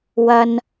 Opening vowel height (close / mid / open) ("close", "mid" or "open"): open